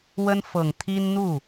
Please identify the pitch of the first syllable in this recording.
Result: high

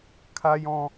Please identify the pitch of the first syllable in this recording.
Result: high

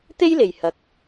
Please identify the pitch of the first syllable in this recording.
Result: high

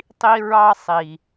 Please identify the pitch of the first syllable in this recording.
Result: high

